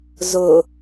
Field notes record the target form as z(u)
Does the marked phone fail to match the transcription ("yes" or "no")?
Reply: yes